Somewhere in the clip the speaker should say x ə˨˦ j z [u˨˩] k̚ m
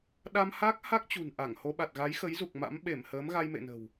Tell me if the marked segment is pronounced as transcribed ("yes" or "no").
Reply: yes